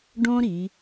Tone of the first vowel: high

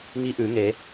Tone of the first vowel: rising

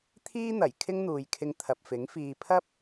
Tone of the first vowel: high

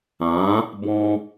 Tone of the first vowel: rising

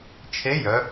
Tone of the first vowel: rising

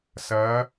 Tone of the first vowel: rising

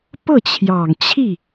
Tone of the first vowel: falling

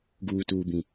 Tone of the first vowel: low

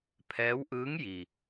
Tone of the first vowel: rising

